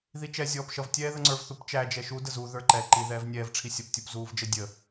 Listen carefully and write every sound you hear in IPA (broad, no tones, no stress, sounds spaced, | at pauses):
ð i t͡ʃ ɛ zʲ ɔː p ʃ ʌ v tʲ ɛː ð ə ŋ͡ǀ ə˞ v θ u p t͡ʃ æ d͡ʒ ɛ ʃ u d ə z u ð ə˞ ǃ ɛ ǃ i ð ɛː v nʲ ɛː v ʈ͡ʂʰ i sʲ ʌ p tʲ u p z uː v d͡ʒ ə dʲ ə